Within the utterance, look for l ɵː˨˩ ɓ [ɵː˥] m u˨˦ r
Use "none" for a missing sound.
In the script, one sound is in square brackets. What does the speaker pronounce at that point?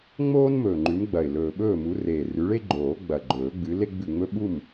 ɵː˥˨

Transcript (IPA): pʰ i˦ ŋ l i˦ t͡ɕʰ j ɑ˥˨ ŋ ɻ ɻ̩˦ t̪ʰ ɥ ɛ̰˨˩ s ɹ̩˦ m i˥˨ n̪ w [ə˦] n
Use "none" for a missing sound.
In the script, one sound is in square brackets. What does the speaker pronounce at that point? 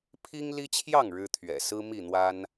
a˦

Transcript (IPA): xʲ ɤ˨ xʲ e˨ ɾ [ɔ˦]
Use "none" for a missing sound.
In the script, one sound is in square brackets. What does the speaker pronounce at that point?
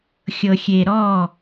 ɔ˦˨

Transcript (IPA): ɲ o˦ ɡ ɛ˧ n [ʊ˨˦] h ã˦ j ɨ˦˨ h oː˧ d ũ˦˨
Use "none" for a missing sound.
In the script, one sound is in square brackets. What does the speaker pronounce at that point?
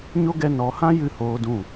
ɔ˨˦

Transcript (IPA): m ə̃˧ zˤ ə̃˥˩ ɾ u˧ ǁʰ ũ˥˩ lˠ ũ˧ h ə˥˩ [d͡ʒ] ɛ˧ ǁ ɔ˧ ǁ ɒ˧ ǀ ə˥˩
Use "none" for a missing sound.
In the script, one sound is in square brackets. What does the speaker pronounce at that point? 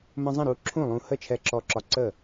t͡ʃʰ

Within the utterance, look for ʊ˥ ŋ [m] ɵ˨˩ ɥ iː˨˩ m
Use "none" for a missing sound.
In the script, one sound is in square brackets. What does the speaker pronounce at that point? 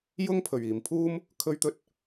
pʰ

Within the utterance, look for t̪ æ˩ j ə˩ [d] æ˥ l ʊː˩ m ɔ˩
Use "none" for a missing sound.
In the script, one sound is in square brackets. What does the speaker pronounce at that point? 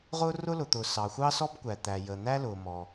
n̪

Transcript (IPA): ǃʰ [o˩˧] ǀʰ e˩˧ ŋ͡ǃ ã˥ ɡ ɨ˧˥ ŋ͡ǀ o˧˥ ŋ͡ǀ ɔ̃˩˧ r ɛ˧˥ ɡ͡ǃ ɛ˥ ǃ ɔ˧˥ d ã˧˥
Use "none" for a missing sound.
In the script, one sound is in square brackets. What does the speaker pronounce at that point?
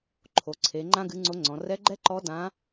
o˩˧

